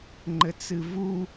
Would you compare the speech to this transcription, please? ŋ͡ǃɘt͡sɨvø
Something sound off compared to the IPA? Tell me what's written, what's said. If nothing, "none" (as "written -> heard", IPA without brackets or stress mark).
ø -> u